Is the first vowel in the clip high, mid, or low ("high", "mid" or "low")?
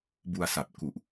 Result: high